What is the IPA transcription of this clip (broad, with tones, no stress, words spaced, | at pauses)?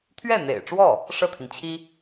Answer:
t̪ʰɥɛ˥˩n̪ḛ˨˩ɪ̯ʈ͡ʂwɔ˥˩ | ʂɤ˥˩t̪ʰi˩nt͡ɕʰi˥